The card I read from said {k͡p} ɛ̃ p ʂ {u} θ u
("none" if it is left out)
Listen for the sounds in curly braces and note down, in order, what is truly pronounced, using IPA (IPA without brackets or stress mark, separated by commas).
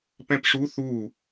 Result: p, u